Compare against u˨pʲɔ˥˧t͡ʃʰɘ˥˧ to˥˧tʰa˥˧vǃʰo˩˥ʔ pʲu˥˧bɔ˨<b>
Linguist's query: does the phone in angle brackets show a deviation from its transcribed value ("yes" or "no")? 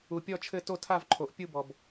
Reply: no